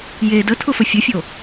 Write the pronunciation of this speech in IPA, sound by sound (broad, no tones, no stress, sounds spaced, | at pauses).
j e d ə tʰ ʊ f ə fʲ ʊ fʲ o